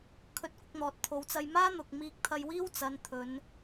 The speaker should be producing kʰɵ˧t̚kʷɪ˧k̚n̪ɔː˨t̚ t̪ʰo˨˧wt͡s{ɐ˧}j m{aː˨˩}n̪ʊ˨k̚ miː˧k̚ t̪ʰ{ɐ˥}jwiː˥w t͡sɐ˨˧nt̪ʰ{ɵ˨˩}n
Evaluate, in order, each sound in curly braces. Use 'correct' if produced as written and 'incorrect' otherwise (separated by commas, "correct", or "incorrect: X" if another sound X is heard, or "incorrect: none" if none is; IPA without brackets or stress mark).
correct, incorrect: aː˥, incorrect: ɐ˧, incorrect: ɵ˨˧